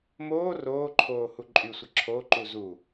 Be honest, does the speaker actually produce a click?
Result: yes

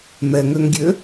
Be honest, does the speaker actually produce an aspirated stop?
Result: no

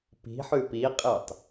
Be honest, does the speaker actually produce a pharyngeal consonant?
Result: yes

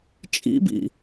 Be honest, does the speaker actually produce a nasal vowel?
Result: no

